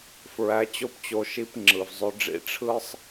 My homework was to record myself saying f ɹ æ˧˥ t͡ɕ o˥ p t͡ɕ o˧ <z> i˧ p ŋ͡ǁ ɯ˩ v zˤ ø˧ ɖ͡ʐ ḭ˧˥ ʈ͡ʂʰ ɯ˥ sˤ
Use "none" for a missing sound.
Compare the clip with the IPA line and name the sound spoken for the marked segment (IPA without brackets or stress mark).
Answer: ʃ